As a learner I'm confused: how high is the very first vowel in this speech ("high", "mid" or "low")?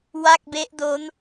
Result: low